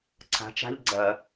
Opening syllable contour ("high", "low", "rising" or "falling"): rising